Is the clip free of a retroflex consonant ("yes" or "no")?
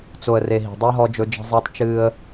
yes